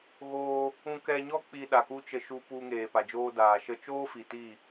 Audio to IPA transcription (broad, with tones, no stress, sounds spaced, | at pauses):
ɣ oː˧ | ũ˧ k ɛ˧ ɲ ɔ˦ k͡p i˧ ɗ a˨ k u˦ t͡ʃ ə˧ ʃ u˧ p u˧ ŋ eː˨ p a˨ d͡ʒ oː˦ d aː˨ ʃ ə˧ t͡ʃ oː˦ f i˨ t i˦˨